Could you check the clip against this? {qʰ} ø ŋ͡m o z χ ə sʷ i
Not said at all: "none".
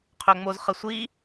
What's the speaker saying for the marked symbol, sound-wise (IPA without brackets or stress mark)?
qʰ